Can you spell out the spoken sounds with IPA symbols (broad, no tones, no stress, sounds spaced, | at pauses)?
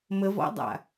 m ə v ɔ̰ dˤ a̰